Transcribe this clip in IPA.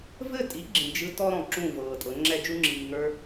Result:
v ɘ˦˨ tʼ i˨˦ ɡ͡ǁ ĩ˨ d͡ʒ ɯ˧ t ɔ˦ ɾ ɔ̃˨ ǁ ũ˦˨ v ɤː˨ tʼ ɤ˨˦ ŋ͡ǁ ɛ˦ d͡ʒ u˦ ŋ͡ǁ iː˨ ŋ ə˞˦

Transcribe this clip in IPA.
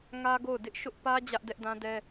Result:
ŋ ä˦ ɡ o˦˨ ʊ̯ d ɪ˦ ʔ ʃ ʊ˦ ʔ p ä˦ d͡ʑ ä˦ ʔ d ɛ˦ ʔ d ã˦ d ɛ˦

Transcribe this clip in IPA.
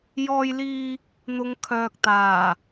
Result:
j ɔː˧ j l iː˧ | n̪ ʊ˨˧ ŋ kʰ œː˨ k̚ t̪ aː˨˩

